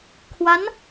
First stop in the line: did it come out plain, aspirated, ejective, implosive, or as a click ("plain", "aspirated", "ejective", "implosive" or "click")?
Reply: aspirated